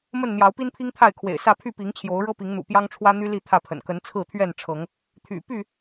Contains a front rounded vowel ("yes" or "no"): yes